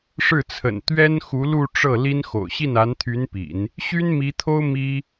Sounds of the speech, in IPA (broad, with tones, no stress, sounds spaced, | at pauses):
ʂ ɻ̩˥˩ t͡sʰ ə̰˨˩ n t̪ ɥ ɛ˥ n x u˧˥ l u˥˧ ʈ͡ʂ ɤ˥˩ l i˥ n x o̰˨˩ ʊ̯ ɕ i˥˩ n a˧˥ n t̪ʰ y˧˥ n p ḭ˨˩˦ n | ɕ y˥ n m i˧˥ t̪ʰ o˥ ʊ̯ m i˥